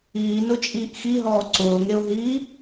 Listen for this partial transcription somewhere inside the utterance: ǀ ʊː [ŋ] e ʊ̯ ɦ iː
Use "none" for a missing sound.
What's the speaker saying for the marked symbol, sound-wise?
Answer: ŋ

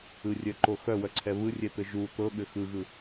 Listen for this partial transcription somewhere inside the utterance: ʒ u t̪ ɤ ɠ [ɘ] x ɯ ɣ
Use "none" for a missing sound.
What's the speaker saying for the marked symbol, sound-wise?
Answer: ɘ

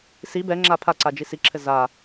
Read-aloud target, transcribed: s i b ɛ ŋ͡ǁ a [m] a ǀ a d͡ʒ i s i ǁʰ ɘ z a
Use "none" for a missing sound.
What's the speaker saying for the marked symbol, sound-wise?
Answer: pʰ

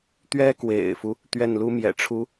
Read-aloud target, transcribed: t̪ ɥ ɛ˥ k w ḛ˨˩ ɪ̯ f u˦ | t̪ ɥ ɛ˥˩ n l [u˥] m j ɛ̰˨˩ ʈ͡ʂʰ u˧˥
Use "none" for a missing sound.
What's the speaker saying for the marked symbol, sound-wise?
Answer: u˥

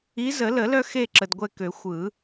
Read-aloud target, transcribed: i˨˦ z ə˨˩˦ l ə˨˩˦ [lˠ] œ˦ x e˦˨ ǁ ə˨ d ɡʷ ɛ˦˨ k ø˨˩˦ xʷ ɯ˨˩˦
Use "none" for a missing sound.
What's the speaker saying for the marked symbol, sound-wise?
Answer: l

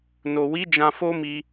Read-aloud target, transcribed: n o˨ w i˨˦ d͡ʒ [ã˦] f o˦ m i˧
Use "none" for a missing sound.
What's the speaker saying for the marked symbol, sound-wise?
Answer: ã˧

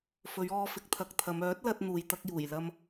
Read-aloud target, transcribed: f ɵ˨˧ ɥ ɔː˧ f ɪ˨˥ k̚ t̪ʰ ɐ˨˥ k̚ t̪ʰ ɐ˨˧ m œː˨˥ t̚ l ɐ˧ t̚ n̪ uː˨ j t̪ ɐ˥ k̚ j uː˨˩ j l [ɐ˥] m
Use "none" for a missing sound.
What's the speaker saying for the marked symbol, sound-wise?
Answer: ɐ˥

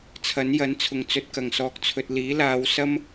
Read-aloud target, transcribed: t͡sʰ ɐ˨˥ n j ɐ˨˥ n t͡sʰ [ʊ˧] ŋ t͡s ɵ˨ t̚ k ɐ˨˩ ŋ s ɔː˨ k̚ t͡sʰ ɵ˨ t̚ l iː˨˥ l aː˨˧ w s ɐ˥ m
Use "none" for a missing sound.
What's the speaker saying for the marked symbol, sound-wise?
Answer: ʊ˨˩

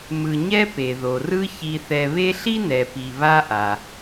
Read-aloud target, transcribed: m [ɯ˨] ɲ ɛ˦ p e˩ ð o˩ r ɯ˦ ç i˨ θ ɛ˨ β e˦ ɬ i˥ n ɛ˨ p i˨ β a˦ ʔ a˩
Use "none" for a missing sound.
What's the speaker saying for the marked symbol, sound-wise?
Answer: ɯ˨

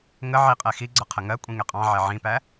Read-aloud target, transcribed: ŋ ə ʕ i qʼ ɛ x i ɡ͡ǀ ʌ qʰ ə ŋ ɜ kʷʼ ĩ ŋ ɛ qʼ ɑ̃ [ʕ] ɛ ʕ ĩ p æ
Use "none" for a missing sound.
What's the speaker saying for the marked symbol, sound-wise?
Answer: ʕ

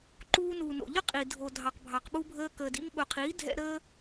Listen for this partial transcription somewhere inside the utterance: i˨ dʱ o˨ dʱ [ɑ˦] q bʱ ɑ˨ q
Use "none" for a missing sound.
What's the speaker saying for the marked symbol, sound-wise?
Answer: ɑ˨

